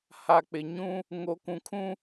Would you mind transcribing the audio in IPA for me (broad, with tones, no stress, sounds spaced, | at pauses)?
h a˨ k͡p ɪ˨ ɲ ũ˦ | ŋ o˨ k ũ˨ kʰ ũ˦